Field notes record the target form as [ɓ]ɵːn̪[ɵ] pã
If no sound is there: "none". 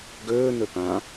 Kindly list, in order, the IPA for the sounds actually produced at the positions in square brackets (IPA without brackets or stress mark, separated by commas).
ɡ, ɵ